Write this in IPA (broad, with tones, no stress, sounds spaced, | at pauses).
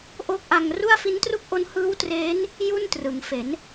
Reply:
ʔ o˦˥ k̚ ʔ a˧ ŋ r u˥˩ a̯ f i˦˥ n t r u˥˩ k̚ ʔ o˦˥ n h ɯː˦˥ w t r eː˦˥ n | j u˥˩ n t r ɯ˩˦ ŋ f e˩˦ n